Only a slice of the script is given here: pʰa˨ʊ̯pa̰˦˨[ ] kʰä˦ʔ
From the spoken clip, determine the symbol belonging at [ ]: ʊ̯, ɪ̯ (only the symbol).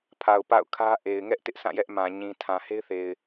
ʊ̯